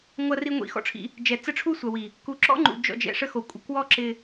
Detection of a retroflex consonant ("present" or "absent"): present